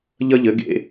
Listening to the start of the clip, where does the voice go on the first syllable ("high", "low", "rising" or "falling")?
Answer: high